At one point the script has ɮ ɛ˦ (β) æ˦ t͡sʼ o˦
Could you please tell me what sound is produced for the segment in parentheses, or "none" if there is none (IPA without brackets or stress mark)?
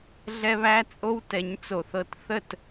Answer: β